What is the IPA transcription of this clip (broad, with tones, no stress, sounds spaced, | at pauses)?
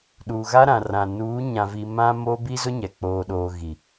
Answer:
ɗ uː˨ ɣ a˦ ɾ ã˨ r ã˨ n uː˨˦ ɲ ã˨ v i˨ m ã˦ m oː˦ b i˦ z ʊ˦ ɲ ɛ˨ k͡p oː˨ ɗ oː˨ ɣ i˨